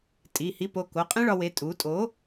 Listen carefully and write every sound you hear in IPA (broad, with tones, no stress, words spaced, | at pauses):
tʼi˩˧˩hi˦ po˩˧˩ko˩˧˩ qʼẽ˦ ɭɒ˩˧we˩˧˩ tʼu˩˧tʼo˩˥